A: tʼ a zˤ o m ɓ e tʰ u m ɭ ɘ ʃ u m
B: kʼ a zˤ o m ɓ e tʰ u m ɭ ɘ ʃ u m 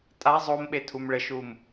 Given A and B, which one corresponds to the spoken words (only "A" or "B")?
A